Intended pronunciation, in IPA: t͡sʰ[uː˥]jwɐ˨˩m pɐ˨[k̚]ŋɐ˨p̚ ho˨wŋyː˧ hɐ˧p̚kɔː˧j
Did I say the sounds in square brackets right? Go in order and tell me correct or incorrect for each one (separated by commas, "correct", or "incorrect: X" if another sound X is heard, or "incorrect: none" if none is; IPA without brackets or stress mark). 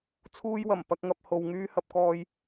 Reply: incorrect: uː˧, correct